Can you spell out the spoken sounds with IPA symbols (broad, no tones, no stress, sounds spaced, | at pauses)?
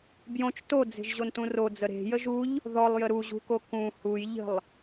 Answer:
b j õ t͡ʃ t o d͡z e̤ ʒ ʑ o n t ũ r o d͡z ə ɾ e̤ j ə ʒ u ʎ | ð ɔ lˠ j ə ɾ u ʑ ṳ k o k ũ h u j ʎ ə̤ lˠ